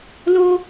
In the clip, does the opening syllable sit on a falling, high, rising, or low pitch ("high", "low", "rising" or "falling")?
high